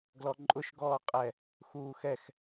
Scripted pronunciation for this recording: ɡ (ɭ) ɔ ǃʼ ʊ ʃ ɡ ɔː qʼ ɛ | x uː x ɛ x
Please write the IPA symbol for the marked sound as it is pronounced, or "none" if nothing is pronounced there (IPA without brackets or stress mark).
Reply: l